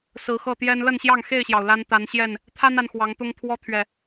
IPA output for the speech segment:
sɹ̩˨˦xɤ˥˨t̪jɛ˦n lə˥˨nɕjɑ˥˨ŋxe˥˨ɪ̯ɕjɑ˩ʊ̯ la˦nt̪a˨˦nɕjɛ˥˨n | t̪ʰa˦na˨n xwɑ˨˦ŋt̪ʊ˦ŋ t̪ʰwɔ˦ t̪ʰɥɛ˨˩

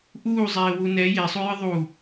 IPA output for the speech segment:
ʔuːzˤeːwu nɛ jesˤujɨ ðˤu

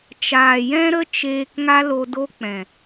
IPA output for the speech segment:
t͡ʃaː˨jɛ̃˦ɾə˦ t͡ʃeː˧kŋa˦lo˧do˦ k͡pɛ̃˨

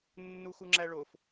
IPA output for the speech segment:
nːuxuŋ͡ǁæɭof

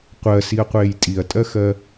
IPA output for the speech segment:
qʷɜsiɐ̯qʷeːj tʼiɐ̯tʼɜxɜ

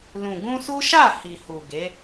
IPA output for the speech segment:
lũ˨ɡũ˧ su˦ʃa˦˨ hi˨hu˨ ɡe˨˦

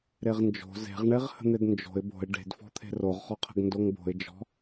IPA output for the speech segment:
ɾeʁnd͡ʒo̤ ze̤ʁɳeʁhə̤n̪ed nd͡ʒo̤ɪ̯ bo̤ɪ̯ ɖe̤dfɔ̤t̪ʰe̤ roʁχɔqʰə̤ɡ ndoŋbo̤ɪ̯ d͡ʒɔ̤

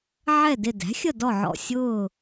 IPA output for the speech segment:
ʕɛ˦˨ dɪ˦˨ dæ̤˩˥xʲə˦˨dɔ˦˨ ʕɔ̰˦˨ sʲʊː˦˨

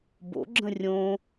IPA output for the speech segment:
bo̰ɡ͡ǁə̃ rʲõ

